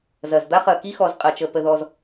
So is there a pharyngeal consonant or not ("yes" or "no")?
no